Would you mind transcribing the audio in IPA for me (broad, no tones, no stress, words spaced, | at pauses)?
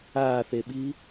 aːθeɓiː